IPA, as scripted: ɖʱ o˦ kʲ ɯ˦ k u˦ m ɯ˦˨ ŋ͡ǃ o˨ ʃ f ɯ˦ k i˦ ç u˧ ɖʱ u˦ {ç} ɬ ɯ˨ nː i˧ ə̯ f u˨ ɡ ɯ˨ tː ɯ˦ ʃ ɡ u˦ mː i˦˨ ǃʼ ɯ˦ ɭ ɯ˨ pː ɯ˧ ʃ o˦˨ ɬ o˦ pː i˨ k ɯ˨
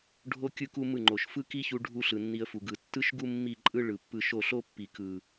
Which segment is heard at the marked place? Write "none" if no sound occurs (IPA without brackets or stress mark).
none